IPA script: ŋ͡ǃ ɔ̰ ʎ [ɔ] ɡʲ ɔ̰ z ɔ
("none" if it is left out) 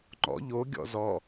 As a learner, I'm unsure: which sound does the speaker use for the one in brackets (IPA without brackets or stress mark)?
o